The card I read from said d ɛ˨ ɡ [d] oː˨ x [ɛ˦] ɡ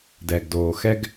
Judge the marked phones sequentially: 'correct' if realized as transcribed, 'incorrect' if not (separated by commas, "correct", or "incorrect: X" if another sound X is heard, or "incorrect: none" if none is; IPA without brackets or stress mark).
correct, correct